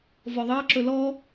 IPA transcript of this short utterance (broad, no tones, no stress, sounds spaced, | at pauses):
v ɔ ðˤ ɑ ǁ ɵ l ɔ